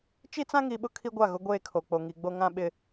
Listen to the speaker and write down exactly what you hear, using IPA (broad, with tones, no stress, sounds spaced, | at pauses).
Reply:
t͡ʃ i˦ t͡s ã˦ ŋ i˨ ɓ ʊ˦ kʰ i˦ ɡʷ a˦˨ ɣ ʊ˦ ɡʷ eː˦ kʰ o˨ k͡p o˨ ŋ i˨ ɡ͡b o˦ ŋ ã˦ ɓ ɪ˦